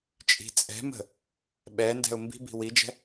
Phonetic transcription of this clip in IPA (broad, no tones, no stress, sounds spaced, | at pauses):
t͡ʃʼ i̤ t͡sʼ ɛ̤ m ə̤ | ɓ ɛ n d ɛ̤ ʊ̯ m b i̤ b i̤ w i d͡ʒ ɛ̤